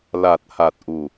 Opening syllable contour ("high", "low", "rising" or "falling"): low